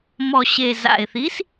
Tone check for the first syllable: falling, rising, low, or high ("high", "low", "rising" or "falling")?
low